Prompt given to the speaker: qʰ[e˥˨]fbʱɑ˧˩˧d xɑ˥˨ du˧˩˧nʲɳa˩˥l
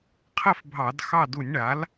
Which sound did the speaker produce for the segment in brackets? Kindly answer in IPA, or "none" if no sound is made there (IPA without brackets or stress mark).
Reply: ɛ˥˨